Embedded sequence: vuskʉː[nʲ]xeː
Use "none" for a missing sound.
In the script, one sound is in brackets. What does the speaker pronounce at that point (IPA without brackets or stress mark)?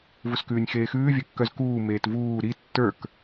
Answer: nʲ